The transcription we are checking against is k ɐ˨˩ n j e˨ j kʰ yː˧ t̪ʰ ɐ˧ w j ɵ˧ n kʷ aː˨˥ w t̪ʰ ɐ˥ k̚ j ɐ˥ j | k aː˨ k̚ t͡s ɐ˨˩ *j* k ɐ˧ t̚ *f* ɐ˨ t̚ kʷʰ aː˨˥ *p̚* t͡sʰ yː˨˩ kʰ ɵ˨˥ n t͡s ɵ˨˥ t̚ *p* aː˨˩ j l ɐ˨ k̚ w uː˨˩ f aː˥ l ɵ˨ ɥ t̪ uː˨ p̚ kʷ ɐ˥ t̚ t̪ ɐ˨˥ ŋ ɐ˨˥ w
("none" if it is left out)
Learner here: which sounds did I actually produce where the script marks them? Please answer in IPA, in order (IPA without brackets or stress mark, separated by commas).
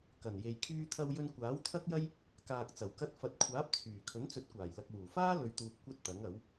w, f, p̚, kʷ